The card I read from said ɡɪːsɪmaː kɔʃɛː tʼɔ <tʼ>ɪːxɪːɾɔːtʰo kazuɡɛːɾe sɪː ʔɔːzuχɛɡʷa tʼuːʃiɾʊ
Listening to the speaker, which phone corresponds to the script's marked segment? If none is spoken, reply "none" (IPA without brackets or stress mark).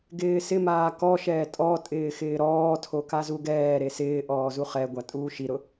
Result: tʼ